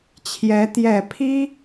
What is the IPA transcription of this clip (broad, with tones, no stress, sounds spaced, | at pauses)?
t͡ɕʰ j ɛ˧˥ t̪ j ɛ˨˩ pʰ i˥